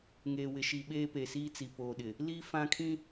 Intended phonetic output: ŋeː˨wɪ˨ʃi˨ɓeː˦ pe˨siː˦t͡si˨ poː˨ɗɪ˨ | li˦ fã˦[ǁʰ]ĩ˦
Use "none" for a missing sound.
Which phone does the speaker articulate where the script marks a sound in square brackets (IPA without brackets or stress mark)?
kʰ